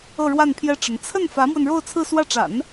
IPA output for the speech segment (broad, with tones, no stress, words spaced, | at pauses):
ɤ˥˧ɻwa˥˩npʰjɛ˥ʈ͡ʂə˧˥n t͡sʰə˥˩n fä˧˥mwə˧n ɻo˥˧ʊ̯t͡sʰɹ̩˥˧swä˥˩ ʈ͡ʂa̰˨˩˦n